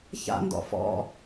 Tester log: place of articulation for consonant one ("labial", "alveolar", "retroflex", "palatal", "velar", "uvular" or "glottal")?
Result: palatal